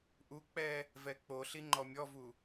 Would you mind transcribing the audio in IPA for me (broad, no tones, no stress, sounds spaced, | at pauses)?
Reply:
ʔ u k͡p ɛ | v ɛ k͡p o ɬ i ŋ͡ǃ ɔ mʲ ɔ v u